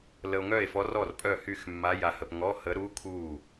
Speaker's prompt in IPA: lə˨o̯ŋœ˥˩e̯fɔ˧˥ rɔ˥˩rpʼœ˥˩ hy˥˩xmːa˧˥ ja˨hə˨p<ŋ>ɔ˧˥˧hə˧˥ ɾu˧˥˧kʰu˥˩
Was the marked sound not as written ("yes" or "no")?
no